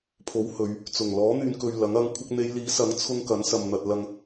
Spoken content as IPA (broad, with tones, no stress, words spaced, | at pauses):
pʰo˨˥w hɵ˨˧ɥ | t͡sʊ˨˩ŋ lɔː˨˥n̪yː˨nkɵ˨ɥ lɐ˨˥ŋ ɐ˨˧ŋ kʷʰɐ˧k̚n̪e˨˧jliː˨˥sɐ˨˥ŋ t͡sʰʊ˧ŋ kɐ˨˥nsɐ˨m n̪ɐ˨t̚lɐ˧ŋ